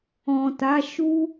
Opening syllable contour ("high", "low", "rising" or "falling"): low